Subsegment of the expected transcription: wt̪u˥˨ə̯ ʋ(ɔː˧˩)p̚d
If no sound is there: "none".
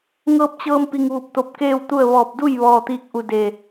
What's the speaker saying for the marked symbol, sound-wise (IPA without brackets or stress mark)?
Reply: ɔː˧˩